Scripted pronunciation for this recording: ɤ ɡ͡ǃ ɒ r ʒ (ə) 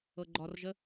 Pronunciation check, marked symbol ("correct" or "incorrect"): correct